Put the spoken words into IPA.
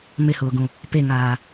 m ɪ h ʊː ɡ ũ | p e ŋ aː

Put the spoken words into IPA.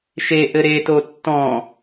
ʃ e ʔ ɘ ɾ e t o tː ɔ̃

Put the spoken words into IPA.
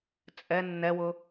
t͡sʼ ɛ nː ɛ w ʊ

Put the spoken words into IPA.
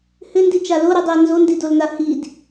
h ʏ n d i t͡ʃ a l o ɾ i dˤ i ə̯ n z o n d i d o l n a h i d

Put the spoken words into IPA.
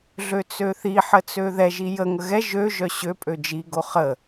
ɮ ø t͡s ø θ i ħ ə t͡s ø ð ɛ ʒ i j ə ŋ ə ɣ ɛ ʒ ø ʒ œ ɕ ø pʼ ø d͡ʒ i ɡ o χ ə

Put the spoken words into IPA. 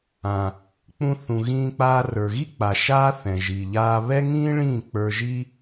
ã˨ | k͡p ũ˧ θ ũ˨ ɣ ĩː˧ k͡p aː˧ r ə˞˨ ɣ i˦ k͡p a˨ ʃ aː˧ θ ɛ̃˨ ʒ i˨ ʎ aː˦ β ɛ˦ ŋ ĩː˦ ɭ ĩː˦˨ k͡p ə˞˧ ʒ i˦

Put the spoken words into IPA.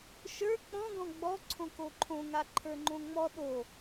ʃ ə˞ k͡p ɔ̃ ɡ ɔ̃ ɡ͡b ɔ ǀʰ õ k o ǃʰ õ ŋ a ǃʰ ə˞ ŋ͡ǃ õ ŋ͡m ɔ ɗ o

